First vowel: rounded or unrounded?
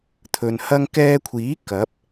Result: rounded